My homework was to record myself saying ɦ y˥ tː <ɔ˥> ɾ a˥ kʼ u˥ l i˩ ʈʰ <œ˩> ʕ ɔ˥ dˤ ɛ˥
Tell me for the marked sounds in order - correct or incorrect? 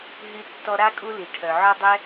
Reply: correct, correct

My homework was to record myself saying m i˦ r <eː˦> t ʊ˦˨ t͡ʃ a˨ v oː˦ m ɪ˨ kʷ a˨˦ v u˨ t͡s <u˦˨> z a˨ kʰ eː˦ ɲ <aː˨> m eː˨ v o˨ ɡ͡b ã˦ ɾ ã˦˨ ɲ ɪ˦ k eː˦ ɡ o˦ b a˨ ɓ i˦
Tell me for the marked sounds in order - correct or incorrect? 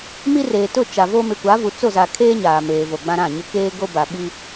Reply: incorrect: eː˨, incorrect: o˦˨, correct

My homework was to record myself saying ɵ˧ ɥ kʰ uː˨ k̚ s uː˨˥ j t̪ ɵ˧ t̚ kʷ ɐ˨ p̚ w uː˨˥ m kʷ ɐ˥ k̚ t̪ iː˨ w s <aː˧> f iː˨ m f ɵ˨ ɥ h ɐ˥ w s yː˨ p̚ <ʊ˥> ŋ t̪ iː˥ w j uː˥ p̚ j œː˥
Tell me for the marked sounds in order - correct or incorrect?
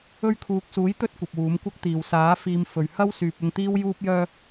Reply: incorrect: aː˨˥, incorrect: ʊ˧

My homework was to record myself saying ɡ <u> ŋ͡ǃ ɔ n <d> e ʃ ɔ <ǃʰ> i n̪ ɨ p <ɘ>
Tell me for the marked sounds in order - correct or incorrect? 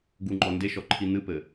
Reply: correct, correct, correct, correct

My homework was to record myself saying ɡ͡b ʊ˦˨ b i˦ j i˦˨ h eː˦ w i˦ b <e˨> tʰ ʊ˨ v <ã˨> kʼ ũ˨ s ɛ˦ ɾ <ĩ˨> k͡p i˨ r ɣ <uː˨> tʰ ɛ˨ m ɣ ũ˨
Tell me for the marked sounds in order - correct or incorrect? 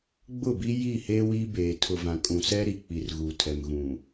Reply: incorrect: eː˨, correct, incorrect: i˨, correct

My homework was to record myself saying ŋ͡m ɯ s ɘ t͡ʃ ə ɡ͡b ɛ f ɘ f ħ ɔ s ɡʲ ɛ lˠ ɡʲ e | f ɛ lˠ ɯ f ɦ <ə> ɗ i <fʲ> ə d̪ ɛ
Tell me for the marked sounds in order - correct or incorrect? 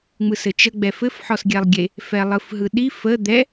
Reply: incorrect: ɯ, incorrect: f

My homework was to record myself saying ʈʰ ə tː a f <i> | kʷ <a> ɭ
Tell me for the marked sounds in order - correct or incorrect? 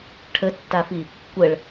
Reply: correct, incorrect: ə

